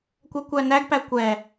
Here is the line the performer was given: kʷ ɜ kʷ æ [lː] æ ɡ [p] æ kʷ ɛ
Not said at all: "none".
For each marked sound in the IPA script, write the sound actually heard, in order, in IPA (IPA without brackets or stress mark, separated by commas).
n, p